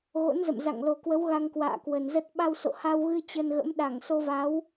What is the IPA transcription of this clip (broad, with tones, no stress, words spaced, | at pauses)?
ɣo̰˧˥nzə̰˧˨m za̰˧˨ŋlo˨˩kwə˨˦w ɣa˧ŋkwa̰ː˧˨ kwə˨˩nzə˦˥t̚ ɓa˧wso̰˧˨ha˧wɣɨ˧ t͡ɕə˧nɣə̰˧˥m ɗa˧˩ŋso˧va˨˦w